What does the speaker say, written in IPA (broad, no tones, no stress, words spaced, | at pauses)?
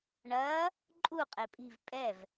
ɳɐː | ǃʼu qʼepʼi̤v pʼɛv